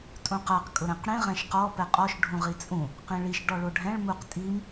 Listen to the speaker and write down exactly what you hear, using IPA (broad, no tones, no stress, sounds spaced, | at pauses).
tʼ ũ q a q kʼ ʊ ɾ ɛ̃ q ɽ ĩ ʁ ɛ̃ ʃ q ɔ p ɛ qʼ ɔ ʃ ɖʱ ũ ʁ i t͡sʼ ũ | q ĩ ɭ i ʃ ɖ ɔ ɭ o ɖʱ ɛ̃ ɭ m u q tʼ i m